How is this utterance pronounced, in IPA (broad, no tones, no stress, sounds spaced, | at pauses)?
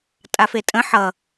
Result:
tʼ a f e tʼ ə̃ ħ ʌ